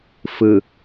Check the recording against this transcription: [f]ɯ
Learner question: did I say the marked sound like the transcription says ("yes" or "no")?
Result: yes